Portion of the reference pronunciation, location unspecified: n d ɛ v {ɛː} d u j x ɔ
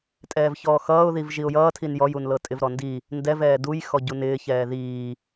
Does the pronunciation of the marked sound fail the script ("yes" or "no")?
no